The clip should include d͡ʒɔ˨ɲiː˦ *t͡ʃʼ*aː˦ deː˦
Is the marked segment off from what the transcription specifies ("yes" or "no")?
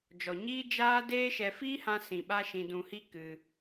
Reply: yes